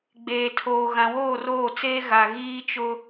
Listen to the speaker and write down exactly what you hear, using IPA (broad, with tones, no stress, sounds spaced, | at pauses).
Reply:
ɡ͡b eː˨ tʰ oː˨ ɣ ã˨ w oː˦˨ r oː˦˨ t͡s eː˦ ɣ a˨ ɣ iː˦ t͡ʃ ʊ˦